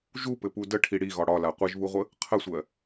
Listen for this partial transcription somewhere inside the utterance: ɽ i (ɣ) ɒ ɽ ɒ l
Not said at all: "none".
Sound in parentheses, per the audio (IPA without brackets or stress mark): ɣ